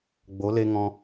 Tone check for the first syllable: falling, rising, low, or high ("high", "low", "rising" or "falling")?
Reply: rising